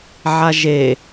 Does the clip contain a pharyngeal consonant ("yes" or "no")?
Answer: yes